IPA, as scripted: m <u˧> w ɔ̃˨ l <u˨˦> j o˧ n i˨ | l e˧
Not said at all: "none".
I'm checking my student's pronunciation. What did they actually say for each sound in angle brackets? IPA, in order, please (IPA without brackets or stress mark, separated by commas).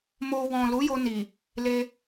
o˧, u˨˦